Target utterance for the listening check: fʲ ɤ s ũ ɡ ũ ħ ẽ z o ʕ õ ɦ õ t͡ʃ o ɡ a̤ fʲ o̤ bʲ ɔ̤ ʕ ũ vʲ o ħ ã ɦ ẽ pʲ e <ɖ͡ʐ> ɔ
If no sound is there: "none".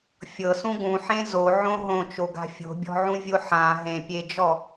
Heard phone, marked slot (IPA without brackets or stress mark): d͡ʒ